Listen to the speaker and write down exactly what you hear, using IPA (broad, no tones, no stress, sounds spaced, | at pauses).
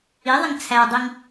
i ðˤ ɪ ŋ t͡sʰ æ dˤ i ŋ